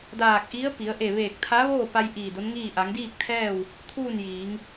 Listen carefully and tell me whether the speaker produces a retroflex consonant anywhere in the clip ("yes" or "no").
no